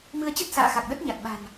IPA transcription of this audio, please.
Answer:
m ɨ˧ ə̯ t͡ɕ ə˦˥ t̚ s a̰ː˧˨ x a˨˩ k̚ ɗ ə˦˥ t̚ ɲ a˨˩ t̚ ɓ a̤˨˩ n

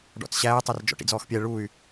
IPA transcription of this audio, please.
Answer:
ɖ ɔ̰ t͡s ɕ æː tˤ ə r d͡ʒ ɔ̰ ʈ ḭ d͡z ɔː x pʲ ɛ ɭ u y̯

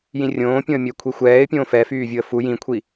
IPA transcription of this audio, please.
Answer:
j ĩ rʲ õː pʲ õ ə̯ mʲ ə ɪ̯ kʷʰ i xʷ ɛː ɪ̯ pʲ õː f ɛ f yː vʲ u ə̯ f u j ĩ kʷʰ i

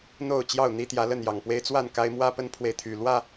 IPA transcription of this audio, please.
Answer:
n̪ o˥˨ ʊ̯ t͡ɕ j ɑ˥˨ ʊ̯ n̪ i˦ t̪ j ä˨˦ l ə˥˨ n j ɑ˨˩ ŋ p w e˦ ɪ̯ t͡s w a˥˨ n k a˦ ɪ̯ m w ä˦ p ə˦ n pʰ w e˨ ɪ̯ t̪ʰ y˨˩ l w ä˥˨

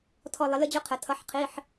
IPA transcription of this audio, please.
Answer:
tʰ ɔ˥˧ lˠ ɪ˦˥ l ə˦˥ d͡ʑ ʊ˦˥ qʰ ə˩˥ tʰ ʌ˧˥˧ ħ qʰ i˧˥˧ ħ

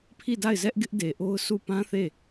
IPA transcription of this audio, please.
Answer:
pʰ i˦˨ d a˦˨ ɪ̯ z ɛ˦ ʔ ɡ ɪ˦ ʔ d e˨ ʔ o˦ ʊ̯ s u˦˨ p ã˦ θ e˦˨

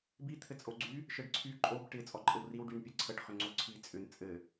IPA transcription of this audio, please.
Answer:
b i t̪ʰ ɘ t͡sʼ o ɡ͡ǀ y | ʃ ɘ ɖ ǀʰ y ǃʼ o b ʈ ɪ t͡sʼ ɔ ǃʼ ɘ w r i w ɖ y n pʲ e ǀʰ ə ʈ χ ʏ ŋ͡ǀ o ǀʰ i t͡sʼ ʏ n t͡sʼ ɘ

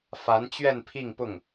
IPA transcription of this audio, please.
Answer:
f a˧˥ n t͡ɕ ɥ ɛ˥˧ n pʰ i˥˧ ŋ p ʊ˥˩ ŋ

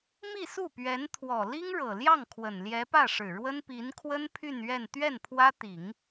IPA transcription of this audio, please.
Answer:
m i˥˧ s u˥˩ p ɥ ɛ˧˥ n t̪ʰ w ɔ˨˩ l i˥ ŋ ɻ ɤ˨˩ l j ɑ˥˩ ŋ kʰ w ə˨˩ n l j ɛ˧˥ p ä˥˩ ʂ ɻ̩˨˩ ɻ w ə˥ n p i˧˥ n kʰ w ə˥ n pʰ y˥˧ n ɥ ɛ˥˧ n t̪ ɥ ɛ˥˩ n pʰ w ä˥ t̪ i˨˩˦ ŋ

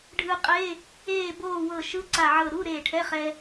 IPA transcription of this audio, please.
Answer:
ɖʱ ɯ˧ qʼ e˧˥˧ | eː˥˨ b oː˥˨ w ɤ˧˩ ʃ ɯ˧˥˧ ǀ a˧˩ ʕ ɤ˧˩ ɾ u˧˥˧ ɾ eː˧˩ ʈʰ ɛ˧˥˧ χ ɛ˧

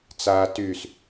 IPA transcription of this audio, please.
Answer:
t͡s aː t y s

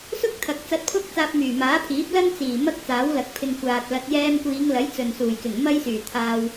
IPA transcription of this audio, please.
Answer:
s ʊ˥ k̚ t̪ʰ ɐ˨ k̚ t͡s ɐ˧ t̚ pʰ ʊ˥ k̚ t͡s aː˧ p̚ m yː˨˩ m aː˨˥ pʰ iː˨˥ p̚ l ɐ˥ n t͡s iː˨˩ m ɐ˥ k̚ t͡s aː˨˥ w l ɐ˨ k̚ pʰ ɪ˧ ŋ kʷ aː˨ t̚ l ɐ˧ t̚ j ɛː˧ m kʷ iː˨˧ ŋ l ɐ˨˥ j t͡s ɵ˨ n s uː˨˩ j k ɪ˨˩ ŋ m ɐ˥ j s yː˨˩ t̪ʰ aː˧ w

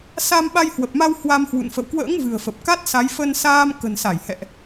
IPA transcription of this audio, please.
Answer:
s a˧ m ɓ a˧ j h w ə˨˩ p̚ m a˧ w h w a˧ m h w ṵ˧˨ n f ə̰˧˨ w k w ə̰ː˧˥ ŋ v ɨ̤˨˩ ə̯ f ə˨˩ p̚ k a˦˥ t̚ s a˨˦ j f ə˧ n s aː˧ m k ə̤˨˩ n s a˧˩ j h ɛ̰˧˨ ʔ

